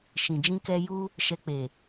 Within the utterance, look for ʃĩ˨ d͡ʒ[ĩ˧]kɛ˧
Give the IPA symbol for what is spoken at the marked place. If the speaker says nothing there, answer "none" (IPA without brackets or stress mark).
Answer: ĩ˧